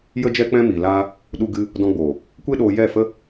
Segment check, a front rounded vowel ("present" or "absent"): absent